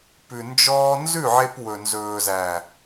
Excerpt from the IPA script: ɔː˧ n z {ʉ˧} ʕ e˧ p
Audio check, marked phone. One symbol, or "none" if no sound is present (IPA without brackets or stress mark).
ʉ˦˨